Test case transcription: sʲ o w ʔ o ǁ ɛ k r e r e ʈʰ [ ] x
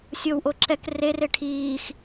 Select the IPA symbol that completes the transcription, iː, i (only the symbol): iː